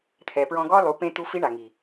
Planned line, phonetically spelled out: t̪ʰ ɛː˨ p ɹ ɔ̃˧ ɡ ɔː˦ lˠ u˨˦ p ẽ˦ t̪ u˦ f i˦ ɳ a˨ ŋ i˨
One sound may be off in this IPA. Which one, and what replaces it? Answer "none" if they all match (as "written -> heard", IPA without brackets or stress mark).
none